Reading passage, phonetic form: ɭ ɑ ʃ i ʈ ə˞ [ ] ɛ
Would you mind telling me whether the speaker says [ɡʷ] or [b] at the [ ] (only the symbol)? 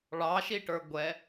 ɡʷ